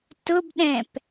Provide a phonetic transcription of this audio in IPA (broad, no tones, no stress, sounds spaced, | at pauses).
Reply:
t ʊ b ɗ ɛ̃ p